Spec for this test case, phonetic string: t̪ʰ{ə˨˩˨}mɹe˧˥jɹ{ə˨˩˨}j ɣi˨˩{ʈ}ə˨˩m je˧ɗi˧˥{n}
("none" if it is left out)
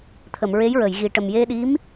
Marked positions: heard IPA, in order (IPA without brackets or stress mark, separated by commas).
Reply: ə˨˩˨, ə˨˩˨, ʈ, m